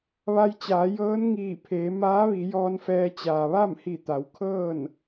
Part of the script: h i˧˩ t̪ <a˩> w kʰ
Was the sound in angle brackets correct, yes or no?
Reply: no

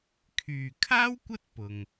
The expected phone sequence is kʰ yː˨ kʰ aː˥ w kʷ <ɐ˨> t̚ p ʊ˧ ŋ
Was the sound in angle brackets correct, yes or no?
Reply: no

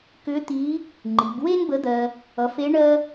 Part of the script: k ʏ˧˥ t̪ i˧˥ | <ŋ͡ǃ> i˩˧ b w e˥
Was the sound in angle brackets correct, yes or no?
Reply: yes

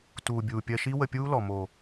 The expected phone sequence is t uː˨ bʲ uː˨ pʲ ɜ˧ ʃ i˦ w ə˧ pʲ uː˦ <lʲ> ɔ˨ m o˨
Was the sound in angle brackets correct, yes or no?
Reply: no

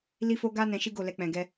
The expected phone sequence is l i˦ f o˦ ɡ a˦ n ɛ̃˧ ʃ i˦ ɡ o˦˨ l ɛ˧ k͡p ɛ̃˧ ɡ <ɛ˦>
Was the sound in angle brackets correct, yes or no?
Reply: yes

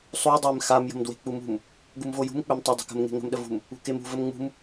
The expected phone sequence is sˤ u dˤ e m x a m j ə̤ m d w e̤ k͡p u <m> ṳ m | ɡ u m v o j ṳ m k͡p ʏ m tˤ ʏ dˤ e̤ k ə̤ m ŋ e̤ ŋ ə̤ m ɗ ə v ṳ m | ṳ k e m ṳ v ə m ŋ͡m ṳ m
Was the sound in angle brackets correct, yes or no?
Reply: yes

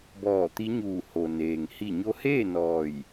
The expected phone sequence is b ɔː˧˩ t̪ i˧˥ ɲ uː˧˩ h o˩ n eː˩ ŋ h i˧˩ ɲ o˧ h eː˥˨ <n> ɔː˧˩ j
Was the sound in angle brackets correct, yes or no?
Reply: yes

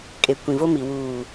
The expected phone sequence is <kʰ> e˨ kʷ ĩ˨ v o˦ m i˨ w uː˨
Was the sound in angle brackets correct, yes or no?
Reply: no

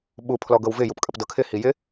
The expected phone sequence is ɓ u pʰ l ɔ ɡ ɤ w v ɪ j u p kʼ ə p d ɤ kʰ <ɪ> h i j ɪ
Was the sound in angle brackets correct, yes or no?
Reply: yes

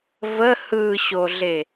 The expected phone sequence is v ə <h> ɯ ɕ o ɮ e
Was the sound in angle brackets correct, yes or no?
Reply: yes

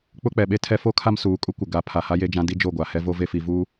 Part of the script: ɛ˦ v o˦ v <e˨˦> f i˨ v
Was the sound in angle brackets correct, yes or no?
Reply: no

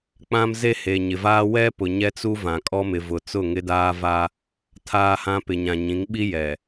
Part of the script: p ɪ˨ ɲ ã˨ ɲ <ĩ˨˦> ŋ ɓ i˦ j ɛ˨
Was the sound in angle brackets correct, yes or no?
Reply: yes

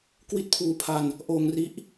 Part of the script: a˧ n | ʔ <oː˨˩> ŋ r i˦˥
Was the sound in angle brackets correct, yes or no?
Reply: no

